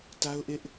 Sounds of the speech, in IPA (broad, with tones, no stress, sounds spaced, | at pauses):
t a˦ ʊ̯ ʔ ɪ˦ ʔ